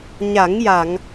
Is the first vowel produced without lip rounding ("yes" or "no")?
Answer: yes